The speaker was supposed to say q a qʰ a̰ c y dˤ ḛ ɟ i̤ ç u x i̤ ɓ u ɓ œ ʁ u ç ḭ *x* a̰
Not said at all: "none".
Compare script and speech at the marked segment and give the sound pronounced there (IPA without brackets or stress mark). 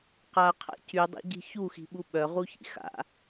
x